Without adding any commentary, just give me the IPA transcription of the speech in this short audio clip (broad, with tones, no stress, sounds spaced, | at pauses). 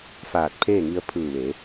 f aː˧˩ t̚ pʰ eː˥˨ ŋ i˧ ə̯ pʰ ɯː˧˩ ʋ e˩˧